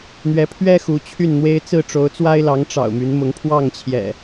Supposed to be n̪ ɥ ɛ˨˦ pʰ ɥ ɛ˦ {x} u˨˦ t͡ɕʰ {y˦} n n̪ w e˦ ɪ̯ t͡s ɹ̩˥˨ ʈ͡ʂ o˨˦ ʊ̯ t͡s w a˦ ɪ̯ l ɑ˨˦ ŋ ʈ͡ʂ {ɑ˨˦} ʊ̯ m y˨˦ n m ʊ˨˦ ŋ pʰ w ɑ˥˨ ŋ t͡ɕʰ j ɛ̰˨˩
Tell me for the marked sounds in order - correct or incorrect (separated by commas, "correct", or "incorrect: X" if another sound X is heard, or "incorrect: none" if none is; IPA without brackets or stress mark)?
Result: correct, incorrect: y˥˨, incorrect: ɑ̰˨˩